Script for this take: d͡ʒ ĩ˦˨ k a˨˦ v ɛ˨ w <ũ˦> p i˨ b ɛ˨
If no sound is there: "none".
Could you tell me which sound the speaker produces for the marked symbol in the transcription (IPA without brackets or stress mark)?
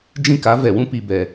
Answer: ũ˦